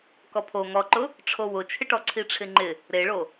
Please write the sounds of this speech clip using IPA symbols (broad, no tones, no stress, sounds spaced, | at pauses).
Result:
k ɔ pʰ o ŋ ɔ ǃ ʊ | ʈ͡ʂʰ o w ʊ t͡ʃʰ ɪ ʈ ɔ ǀʰ i ʈ͡ʂʰ ɪ ŋ͡ǃ ɪ | ɾ e ɭ o